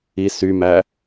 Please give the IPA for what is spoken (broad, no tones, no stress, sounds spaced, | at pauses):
i s y m æ